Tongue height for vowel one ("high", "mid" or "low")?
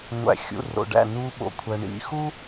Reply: low